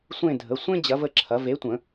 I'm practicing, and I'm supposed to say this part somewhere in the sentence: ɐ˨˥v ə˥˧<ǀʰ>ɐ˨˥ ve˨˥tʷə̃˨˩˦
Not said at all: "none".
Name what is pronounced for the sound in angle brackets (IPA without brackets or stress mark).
ǁʰ